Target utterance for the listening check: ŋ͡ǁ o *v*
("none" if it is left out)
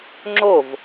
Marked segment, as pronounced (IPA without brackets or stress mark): v